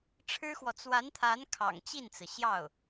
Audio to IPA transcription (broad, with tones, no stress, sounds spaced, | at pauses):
ʈ͡ʂʰ ɻ̩˥ x w ɔ˨ t͡s w a˧˥ n t̪ʰ a˧˥ n kʰ ɑ̰˨˩ ŋ t͡ɕ i˥˩ n t͡s ɹ̩˩ ɕ j ɑ˥˩ ʊ̯